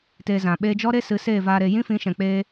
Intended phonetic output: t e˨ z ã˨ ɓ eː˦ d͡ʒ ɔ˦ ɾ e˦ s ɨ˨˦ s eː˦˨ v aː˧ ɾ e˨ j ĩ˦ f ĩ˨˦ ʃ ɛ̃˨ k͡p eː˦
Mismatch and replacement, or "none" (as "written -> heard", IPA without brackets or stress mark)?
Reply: none